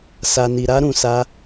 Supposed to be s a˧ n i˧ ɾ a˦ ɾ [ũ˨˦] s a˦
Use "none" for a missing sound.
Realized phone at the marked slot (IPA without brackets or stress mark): ũ˧